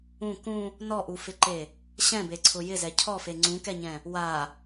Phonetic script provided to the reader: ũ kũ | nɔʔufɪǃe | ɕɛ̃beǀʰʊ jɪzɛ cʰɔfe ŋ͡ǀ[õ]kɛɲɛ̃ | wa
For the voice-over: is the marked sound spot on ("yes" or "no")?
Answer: no